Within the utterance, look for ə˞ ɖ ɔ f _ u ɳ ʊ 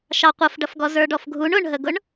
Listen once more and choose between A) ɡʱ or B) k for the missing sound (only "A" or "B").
A